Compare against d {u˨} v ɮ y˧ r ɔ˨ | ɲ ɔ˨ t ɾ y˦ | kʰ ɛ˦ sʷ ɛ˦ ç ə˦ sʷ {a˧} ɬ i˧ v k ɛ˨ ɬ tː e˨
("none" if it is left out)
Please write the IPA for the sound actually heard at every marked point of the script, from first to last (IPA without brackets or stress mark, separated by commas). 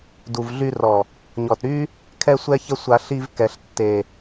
u˨, a˧